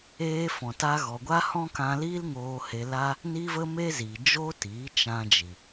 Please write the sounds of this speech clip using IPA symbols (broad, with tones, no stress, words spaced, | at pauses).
eː˧fɔ̃˨ta˧ ɣɔ˨ɡʷa˦hɔ̃˦ kã˧liː˦l ŋoː˧he˧la˦ | ni˦və˦me˦zi˨ d͡ʒo˦tiː˨˦ t͡ʃã˧d͡ʒi˨